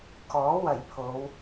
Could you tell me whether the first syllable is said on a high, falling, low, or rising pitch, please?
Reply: rising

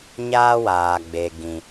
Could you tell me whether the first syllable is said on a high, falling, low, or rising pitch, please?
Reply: high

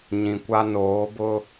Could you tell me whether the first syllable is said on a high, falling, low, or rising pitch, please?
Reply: low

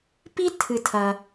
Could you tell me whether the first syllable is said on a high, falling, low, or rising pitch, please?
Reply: high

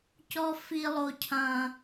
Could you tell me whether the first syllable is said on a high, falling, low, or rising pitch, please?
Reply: high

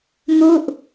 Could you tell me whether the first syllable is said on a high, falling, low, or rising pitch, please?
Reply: falling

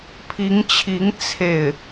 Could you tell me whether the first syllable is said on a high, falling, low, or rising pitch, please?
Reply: rising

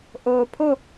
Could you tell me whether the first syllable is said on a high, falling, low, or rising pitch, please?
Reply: low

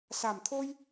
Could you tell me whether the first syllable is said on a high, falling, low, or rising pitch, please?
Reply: low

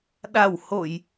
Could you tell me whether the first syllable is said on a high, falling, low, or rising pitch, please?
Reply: low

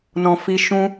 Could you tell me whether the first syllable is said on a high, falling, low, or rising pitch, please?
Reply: low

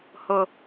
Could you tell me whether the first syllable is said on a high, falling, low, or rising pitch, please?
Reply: low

